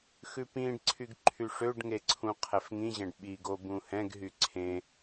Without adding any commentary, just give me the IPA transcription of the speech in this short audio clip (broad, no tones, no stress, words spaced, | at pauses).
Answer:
xʉpĩɖǀʰyɡ ǃʰyʂøɖŋe ǀʰũqʰɛfŋĩʑɛ̃ɖ ɓiɡo bũhɛ̃ɡɦy ǀʰẽ